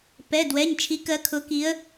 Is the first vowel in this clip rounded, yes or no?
no